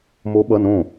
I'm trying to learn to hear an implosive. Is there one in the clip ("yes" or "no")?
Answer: yes